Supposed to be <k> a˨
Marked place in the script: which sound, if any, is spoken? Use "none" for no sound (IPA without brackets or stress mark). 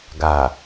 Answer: ɡ